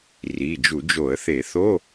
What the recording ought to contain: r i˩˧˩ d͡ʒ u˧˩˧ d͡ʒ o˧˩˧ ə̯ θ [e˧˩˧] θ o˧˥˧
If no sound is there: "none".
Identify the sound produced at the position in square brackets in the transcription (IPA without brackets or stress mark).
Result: e˧˩˧